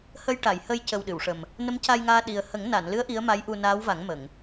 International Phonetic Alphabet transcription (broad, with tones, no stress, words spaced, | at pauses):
hə˧jʈa˨˩˨j hə˧jcə˨˩w ɗɨ˨˩˨wʂə˨˩m | nə˧˥mca˧jŋaː˧ ɗi˨˩ə̯hə˨˩˦ŋna˨˩˨nlɨ˧˥ə̯ ʔi˧˥ə̯ ma˧˥jʔu˧naː˧˥wva˨˩˦ŋ mə˨˩˨ŋ